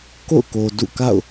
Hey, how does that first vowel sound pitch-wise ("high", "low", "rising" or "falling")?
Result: falling